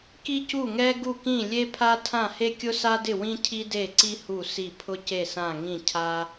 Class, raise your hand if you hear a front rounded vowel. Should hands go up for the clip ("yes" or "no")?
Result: no